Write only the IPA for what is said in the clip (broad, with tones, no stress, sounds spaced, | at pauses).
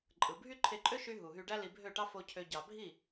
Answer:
ǃʼ ɯ˨ bʱ y˦ ǃʰ e˧ ǃʼ ø˦ ʃ y˧ ɦ u˨ ɦ y˧ ɖ æ˦ l i˧ bʱ ø˦˨ ʈ ɑ˦ f o˧ cʰ ø˧ ɟ ɑ˨ bʱ i˦˨